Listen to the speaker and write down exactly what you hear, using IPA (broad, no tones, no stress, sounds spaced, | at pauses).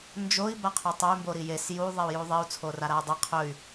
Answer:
n d͡ʒ o i̯ b a qʰ u tˤ ɵ y̯ m b o ɾ i j e s j u ðˤ e u̯ j u ðˤ i u̯ t͡sʰ o r a ɾ a u̯ dˤ ɐ qʰ ɵ y̯